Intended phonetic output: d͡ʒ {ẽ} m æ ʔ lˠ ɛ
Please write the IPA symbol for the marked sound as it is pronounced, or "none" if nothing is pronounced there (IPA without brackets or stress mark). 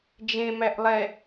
ẽ